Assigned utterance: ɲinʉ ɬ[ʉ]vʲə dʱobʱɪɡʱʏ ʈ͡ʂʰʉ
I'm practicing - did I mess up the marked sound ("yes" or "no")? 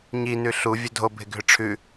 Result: yes